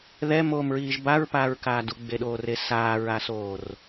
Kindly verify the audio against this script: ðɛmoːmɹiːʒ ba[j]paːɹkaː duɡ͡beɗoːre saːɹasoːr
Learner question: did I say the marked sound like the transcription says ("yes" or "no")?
no